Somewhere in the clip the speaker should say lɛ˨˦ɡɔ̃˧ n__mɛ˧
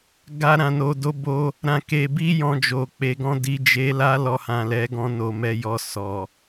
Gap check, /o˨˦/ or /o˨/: o˨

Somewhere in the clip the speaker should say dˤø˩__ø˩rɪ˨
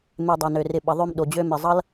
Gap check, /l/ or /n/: n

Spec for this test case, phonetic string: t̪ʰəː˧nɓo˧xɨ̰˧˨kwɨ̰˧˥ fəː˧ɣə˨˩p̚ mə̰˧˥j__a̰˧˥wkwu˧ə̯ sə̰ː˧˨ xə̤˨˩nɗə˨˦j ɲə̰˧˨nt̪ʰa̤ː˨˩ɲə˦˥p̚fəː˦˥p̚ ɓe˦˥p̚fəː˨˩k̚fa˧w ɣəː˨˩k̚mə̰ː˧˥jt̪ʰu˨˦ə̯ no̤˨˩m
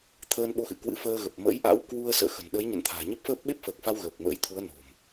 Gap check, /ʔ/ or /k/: ʔ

